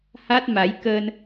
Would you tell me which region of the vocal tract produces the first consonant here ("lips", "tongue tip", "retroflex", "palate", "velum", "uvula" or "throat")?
throat